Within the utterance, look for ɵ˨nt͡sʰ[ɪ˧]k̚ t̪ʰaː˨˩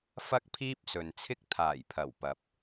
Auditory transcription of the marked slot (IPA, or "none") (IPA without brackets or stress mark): ɪ˥